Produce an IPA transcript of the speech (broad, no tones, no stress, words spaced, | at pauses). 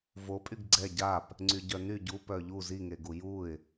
vopʼyɡ ɡ͡ǀɛ ɟap | ŋ͡ǀyɟœny ɟu pœʎu ziŋeɡu juɪ̯